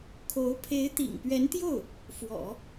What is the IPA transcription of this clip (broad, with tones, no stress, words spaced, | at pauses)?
kʰo˧˥ʊ̯ pʰe˧˥ɪ̯t̪ḭ˨˩ŋpɥɛ˧˥nt̪jo˥˩ʊ̯ | fwɔ̰˨˩˦